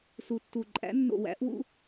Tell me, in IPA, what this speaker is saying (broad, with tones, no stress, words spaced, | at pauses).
su˨˩tːu˨˩ ǃʼæ̰˨˦nːo̰˨˩wæ̰˨˩˦ʔwṵ˦